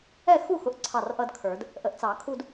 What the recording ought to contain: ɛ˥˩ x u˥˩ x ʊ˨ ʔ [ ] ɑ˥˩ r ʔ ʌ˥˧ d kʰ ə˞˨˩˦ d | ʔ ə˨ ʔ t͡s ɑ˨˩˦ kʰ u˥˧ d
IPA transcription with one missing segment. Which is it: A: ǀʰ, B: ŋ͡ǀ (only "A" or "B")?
A